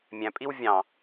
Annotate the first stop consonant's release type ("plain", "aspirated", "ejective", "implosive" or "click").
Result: ejective